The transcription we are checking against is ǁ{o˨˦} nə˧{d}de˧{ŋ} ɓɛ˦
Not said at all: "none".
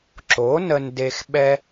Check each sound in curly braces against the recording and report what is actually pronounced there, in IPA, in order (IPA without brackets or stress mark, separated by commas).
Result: o˨˦, n, x